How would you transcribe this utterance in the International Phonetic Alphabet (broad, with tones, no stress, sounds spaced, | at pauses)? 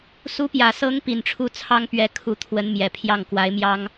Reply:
s u˧˥ p j ä˨˩ s ɤ˧˥ ŋ p i˨˩ n ʈ͡ʂʰ u˥˩ t͡sʰ ɑ˥ ŋ p ɥ ɛ˧˥ kʰ u˧˥ t̪ʰ w ə˧˥ n m j ɛ˨˩ pʰ j ɑ˥˩ ŋ k w a˧˥ ɪ̯ m j ɑ˥ ŋ